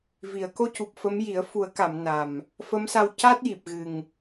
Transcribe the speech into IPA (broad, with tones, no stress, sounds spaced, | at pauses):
v i˨˩˨ ə̯ k o˧ c u˨˩ p̚ f ə˧˥ m j i˨˩˦ ə̯ f u˨˩˦ ə̯ k a˨˩˨ m n a˨˩ m | f ə˧˥ m s a˧ w c a˦˥ t̚ j i˨˩ p̚ ɣ ɨ˨˩ ŋ